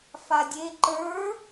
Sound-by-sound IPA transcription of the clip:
f a dʲ e ǃ ə˞

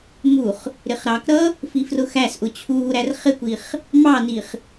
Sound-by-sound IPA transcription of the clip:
m u χ | ɾ ɪ χ ɾ ɑ k ɾ ʌ | f i f r ʊ x æ s ʔ ʊ t͡ɕʰ uː ɾ æ r χ ɪ kʷ i χ | m ɑ n i χ

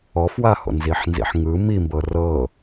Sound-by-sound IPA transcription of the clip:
ɔ f w a h o̰ n z i ħ n z ḭ ħ ŋ ɯ m i m b ɤ r ɤ

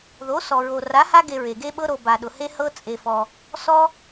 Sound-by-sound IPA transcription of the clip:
ð o˨˥ s ɔ˨ ɹ o˨ r a˨˥ h a˦ ɡ e˨ ɹ e˨ ɡ e˦ ɓ ɤ˦ ɾ o˨ b a˨ ɗ ʊ˨ h e˦ h ɤ˦ t͡sʼ e˨ f ɔ˨ | s ɔ˦

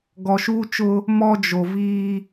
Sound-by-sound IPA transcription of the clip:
ɡ ɔ˨ ʃ uː˦ t͡ʃ ʊ˦ | m ɔ˦ d͡ʒ o˨ v iː˦

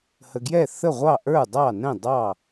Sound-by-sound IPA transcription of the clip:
h ə˨ ɡ j ɛ˥˩ θ ə˥˩ ʁʷ ɑ˥˩ ʔ ə˞˥˩ dˤ ɑ˥˩ n ɛ̃˥˩ dˤ ɑ˥˩

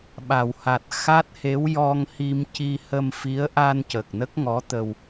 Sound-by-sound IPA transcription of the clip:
ɓ a˨˩˨ w h a˨˩ t̚ x a˦˥ t̚ h e˧˥ w j ɔ˧ ŋ h i˧ m c i˧ h ə˧ m f i˧˥ ə̯ ʔ a˧ n c ə˨˩ k̚ n ə˦˥ k̚ ŋ ɔ˧˥ t̪ ə˧ w

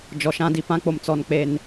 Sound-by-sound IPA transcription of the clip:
d͡ʒ ɔ˨ ʃ ã˦ d i˨ p ã˦ k͡p o˨ m t͡s ɔ˨ n k͡p e˨ n

